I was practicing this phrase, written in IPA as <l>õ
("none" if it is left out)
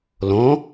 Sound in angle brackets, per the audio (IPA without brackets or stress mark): l